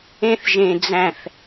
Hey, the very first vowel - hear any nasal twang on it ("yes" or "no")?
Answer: yes